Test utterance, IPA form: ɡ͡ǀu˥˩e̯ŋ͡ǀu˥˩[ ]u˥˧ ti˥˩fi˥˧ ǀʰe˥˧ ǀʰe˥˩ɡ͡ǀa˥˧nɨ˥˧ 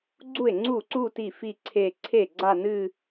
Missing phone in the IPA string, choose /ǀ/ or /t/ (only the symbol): ǀ